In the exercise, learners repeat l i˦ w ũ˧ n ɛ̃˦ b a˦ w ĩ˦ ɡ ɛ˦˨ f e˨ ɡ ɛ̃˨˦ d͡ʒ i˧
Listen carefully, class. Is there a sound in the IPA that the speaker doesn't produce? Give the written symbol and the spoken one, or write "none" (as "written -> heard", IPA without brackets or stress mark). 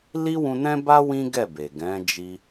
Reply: f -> b